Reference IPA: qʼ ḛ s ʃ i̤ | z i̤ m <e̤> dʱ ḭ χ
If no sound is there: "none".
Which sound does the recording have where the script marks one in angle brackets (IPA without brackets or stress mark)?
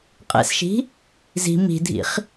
i̤